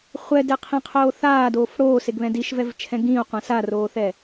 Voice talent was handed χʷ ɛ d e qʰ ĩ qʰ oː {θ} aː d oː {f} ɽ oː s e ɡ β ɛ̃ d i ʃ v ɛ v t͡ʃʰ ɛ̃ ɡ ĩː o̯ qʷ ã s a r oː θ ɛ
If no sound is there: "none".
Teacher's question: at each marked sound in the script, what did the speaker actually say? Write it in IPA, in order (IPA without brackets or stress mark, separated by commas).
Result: θ, f